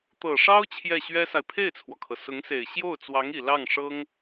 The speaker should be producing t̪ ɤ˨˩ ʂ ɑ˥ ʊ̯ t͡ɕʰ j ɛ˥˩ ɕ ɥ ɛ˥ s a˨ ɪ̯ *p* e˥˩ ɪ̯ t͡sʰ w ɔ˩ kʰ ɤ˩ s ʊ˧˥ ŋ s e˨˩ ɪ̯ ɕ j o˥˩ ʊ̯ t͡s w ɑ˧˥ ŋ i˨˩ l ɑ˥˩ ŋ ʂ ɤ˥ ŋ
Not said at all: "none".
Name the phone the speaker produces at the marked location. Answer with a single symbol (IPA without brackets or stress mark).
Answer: pʰ